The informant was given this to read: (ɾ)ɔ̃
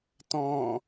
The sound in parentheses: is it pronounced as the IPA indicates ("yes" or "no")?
no